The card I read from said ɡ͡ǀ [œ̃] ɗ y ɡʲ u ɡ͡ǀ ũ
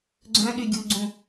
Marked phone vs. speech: correct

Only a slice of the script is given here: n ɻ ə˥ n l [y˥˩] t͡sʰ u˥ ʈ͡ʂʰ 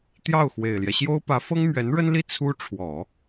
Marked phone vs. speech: incorrect: i˥˩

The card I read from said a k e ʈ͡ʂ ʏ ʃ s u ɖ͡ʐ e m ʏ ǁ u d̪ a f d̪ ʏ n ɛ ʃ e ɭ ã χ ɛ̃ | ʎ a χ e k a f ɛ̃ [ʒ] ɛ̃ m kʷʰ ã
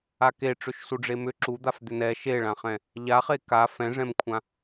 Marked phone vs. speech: incorrect: ʐ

